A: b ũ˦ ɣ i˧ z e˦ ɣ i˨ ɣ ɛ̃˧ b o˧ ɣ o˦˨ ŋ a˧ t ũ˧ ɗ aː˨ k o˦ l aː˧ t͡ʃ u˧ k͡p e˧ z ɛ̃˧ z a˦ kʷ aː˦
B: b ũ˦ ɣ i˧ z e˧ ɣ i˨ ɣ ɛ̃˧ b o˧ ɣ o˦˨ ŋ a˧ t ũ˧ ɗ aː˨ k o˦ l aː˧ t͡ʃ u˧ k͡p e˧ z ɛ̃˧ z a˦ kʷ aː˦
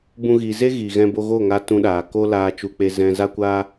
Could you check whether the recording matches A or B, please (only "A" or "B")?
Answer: A